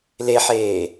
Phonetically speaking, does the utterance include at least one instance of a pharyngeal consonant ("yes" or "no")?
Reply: yes